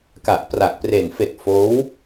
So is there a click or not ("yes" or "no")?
no